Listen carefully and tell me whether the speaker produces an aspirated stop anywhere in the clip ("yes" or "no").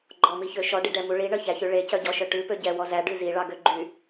no